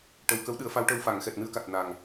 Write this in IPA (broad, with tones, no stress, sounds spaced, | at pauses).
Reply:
ʈ ə˨˩ w k ə˧˥ w ɗ ɨ˨˩˦ ə̯ f a˧˥ w ʈ ə˧ w f a˨˩˨ ŋ x ɛ˨˩ t̚ n ɨ˧ ə̯ k a˨˩ t̚ n a˨˩ ŋ